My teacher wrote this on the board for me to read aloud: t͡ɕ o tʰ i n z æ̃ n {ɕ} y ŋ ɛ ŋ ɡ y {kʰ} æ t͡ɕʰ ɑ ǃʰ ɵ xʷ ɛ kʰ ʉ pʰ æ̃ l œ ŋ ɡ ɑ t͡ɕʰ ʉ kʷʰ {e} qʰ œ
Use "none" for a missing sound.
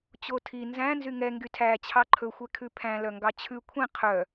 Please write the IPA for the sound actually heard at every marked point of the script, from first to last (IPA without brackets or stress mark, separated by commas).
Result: z, tʰ, ẽ